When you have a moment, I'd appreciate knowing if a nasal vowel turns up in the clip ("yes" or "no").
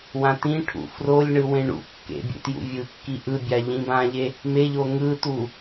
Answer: yes